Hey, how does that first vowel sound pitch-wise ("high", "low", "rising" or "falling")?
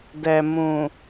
low